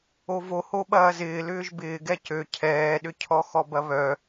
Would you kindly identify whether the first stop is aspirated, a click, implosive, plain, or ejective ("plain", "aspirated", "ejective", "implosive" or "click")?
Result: implosive